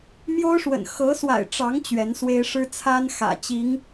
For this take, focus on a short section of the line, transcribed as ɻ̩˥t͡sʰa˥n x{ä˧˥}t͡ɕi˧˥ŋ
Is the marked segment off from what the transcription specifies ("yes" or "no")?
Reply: yes